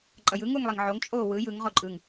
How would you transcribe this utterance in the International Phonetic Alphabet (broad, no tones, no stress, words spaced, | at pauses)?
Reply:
ǃʼʌjɯ ŋuŋlˠiŋʕoŋ t͡ʃʼo wɯ jɯŋ ʁoǃʼɯŋ